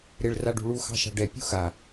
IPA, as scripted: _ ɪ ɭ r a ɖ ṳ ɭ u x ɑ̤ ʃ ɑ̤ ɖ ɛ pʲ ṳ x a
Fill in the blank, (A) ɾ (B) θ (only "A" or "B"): A